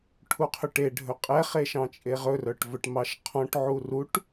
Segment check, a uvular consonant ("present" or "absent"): present